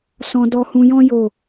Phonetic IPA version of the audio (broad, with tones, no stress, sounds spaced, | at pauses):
s ɔ̃˧ d ɔ˧ h ũ˧ j ɔ̃˦ j o˦˨